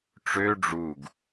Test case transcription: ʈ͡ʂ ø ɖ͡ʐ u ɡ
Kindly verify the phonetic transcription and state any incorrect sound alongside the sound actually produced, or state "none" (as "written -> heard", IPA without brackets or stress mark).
none